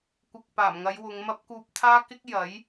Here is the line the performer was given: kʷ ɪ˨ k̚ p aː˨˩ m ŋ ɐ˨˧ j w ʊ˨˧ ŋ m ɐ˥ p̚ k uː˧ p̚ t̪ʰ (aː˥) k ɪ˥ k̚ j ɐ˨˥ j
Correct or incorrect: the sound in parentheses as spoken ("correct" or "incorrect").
correct